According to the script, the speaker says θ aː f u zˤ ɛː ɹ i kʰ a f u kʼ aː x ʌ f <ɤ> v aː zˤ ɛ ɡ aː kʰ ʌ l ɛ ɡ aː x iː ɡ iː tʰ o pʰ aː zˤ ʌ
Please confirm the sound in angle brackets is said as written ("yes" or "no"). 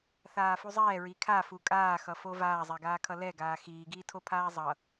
no